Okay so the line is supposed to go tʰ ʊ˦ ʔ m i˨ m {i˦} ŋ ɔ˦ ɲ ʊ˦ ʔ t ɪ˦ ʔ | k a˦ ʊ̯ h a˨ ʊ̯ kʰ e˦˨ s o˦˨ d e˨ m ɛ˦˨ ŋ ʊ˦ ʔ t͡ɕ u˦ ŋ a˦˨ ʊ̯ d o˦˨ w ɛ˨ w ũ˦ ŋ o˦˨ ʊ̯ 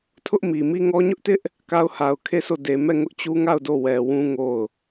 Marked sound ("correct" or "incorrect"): correct